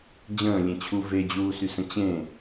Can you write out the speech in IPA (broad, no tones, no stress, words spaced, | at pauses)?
d͡ʑə̃ːlʲẽt͡ɕʰu ved͡ʑuːsysə̃ t͡ɕẽ